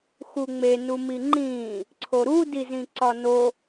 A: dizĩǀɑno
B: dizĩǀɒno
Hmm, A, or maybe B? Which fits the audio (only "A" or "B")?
B